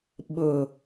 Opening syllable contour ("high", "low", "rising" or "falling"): low